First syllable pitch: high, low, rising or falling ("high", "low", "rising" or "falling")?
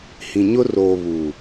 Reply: low